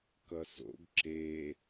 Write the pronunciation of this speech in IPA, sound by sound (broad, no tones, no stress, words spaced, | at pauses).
kʌso̰ɡ ǁe